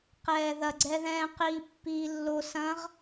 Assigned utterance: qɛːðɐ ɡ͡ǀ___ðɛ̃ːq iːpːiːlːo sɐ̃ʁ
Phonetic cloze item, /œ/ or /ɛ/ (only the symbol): ɛ